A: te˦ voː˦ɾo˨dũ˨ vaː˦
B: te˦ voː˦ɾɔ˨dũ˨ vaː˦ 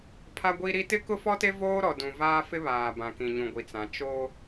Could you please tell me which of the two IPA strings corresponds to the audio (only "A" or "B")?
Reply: B